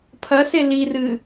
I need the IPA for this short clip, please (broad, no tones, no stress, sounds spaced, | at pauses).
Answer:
pʰ ɐ s e l i r ɨ